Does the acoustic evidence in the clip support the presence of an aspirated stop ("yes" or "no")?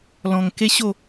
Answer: no